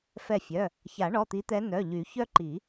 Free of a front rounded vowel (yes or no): no